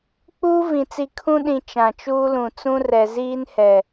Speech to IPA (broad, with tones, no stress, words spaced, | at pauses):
k͡puː˦ vĩ˨t͡si˨ kʰũ˦ɗĩ˨ t͡ʃã˨t͡ʃuː˦lũ˨ t͡sũ˦ rɛ˨ ziː˦nhɛ˨